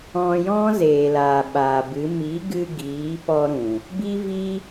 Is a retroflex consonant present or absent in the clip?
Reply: absent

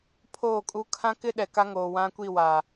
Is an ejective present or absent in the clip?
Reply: present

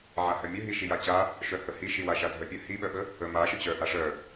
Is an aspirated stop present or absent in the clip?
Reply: absent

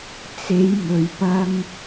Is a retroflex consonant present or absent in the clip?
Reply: absent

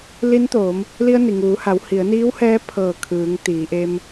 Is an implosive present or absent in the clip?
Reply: absent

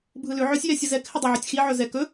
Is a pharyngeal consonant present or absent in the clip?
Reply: present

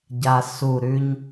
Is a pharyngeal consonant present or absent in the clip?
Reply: absent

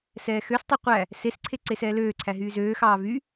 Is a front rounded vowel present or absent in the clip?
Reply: present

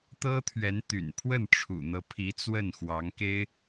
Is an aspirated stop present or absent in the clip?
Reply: present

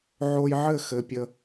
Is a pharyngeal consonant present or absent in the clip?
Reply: present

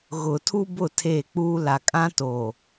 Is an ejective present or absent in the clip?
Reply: present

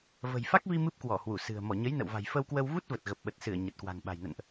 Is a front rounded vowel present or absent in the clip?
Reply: absent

